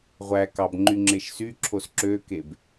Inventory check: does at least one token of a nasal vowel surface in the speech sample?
no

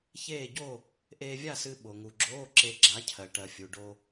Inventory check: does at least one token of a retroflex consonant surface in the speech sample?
yes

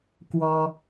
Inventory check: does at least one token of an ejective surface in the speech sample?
no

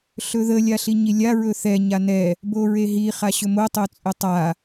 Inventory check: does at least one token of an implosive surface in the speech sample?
no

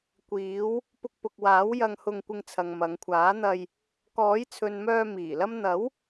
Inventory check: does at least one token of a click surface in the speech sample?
no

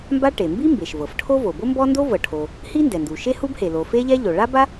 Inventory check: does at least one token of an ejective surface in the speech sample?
no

